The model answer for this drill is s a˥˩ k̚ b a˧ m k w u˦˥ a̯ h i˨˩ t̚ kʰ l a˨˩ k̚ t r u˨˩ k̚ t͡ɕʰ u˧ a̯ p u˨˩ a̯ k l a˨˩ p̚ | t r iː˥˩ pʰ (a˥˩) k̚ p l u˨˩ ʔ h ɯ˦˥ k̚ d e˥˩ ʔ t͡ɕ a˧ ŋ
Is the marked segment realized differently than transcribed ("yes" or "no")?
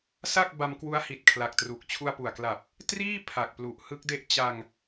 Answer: yes